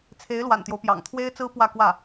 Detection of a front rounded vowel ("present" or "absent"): absent